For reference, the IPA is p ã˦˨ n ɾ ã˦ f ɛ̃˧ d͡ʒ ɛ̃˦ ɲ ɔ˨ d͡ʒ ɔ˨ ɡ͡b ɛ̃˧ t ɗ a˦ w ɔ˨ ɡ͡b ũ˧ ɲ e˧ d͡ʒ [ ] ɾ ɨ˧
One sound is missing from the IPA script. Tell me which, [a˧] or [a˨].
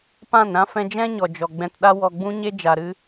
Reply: a˨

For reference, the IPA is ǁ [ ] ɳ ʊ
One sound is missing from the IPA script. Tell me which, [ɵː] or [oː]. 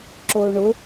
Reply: oː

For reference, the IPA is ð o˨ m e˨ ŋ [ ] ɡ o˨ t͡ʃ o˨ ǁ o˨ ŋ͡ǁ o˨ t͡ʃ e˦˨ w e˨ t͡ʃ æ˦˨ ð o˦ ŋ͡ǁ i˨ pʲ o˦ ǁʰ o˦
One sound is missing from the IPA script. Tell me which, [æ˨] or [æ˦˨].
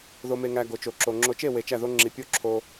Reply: æ˨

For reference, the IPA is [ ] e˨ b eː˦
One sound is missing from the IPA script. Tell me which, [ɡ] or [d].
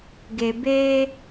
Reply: ɡ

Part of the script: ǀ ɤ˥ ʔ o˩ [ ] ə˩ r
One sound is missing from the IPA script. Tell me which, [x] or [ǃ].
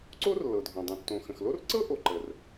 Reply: ǃ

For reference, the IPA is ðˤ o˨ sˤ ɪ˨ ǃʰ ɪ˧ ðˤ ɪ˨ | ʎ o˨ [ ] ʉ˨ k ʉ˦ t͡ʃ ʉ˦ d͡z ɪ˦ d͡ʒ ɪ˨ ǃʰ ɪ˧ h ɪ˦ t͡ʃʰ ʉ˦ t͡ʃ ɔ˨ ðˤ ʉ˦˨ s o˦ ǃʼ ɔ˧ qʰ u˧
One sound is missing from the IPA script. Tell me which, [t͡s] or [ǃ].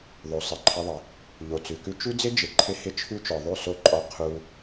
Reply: t͡s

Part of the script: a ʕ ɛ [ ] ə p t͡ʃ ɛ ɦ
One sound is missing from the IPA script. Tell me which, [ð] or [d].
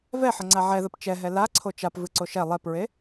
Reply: ð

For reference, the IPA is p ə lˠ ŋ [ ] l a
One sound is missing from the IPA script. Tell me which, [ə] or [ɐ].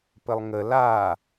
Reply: ə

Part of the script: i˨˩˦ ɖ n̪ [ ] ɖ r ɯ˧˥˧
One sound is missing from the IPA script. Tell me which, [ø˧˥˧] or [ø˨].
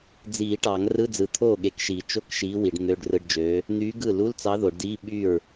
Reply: ø˧˥˧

